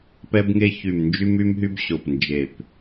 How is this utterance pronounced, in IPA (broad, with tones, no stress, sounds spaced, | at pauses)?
p ɛ˧ b ŋ e˧ ç y˨˩ m n d͡ʒ y˧ m y˧ m ɦ y˧ b ɕ o˨˩ p n d͡ʒ e˨˩ p